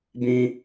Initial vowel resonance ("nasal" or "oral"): nasal